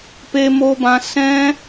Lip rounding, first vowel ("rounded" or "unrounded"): unrounded